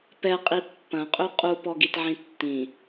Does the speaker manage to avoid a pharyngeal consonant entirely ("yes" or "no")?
no